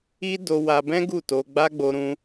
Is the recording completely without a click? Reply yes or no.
yes